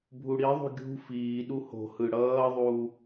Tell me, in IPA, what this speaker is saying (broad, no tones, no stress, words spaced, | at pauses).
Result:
bʱuɽiðˤṳ ɡʲṳ fiːɗu ho̤hɯ ɽʌːðˤuː